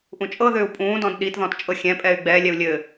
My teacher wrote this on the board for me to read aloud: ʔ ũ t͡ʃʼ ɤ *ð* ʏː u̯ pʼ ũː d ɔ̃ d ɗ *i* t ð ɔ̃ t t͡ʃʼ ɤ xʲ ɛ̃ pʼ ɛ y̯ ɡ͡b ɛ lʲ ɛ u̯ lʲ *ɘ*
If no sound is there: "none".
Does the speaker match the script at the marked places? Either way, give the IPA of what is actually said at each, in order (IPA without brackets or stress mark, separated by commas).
ð, i, ɘ